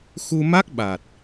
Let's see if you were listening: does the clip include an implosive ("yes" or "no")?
yes